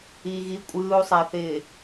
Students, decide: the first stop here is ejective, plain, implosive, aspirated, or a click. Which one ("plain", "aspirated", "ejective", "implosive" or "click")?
ejective